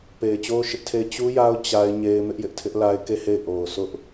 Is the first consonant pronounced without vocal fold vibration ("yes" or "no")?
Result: yes